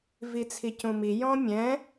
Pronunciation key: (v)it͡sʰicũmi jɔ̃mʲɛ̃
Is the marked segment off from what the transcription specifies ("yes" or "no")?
no